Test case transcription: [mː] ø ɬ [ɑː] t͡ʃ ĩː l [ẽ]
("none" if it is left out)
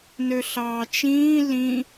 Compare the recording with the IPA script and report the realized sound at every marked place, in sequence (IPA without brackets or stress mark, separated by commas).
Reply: n, ɑː, ĩ